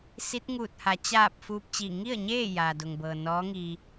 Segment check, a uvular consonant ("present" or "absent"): absent